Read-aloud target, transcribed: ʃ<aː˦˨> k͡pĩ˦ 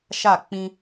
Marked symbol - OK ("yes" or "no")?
no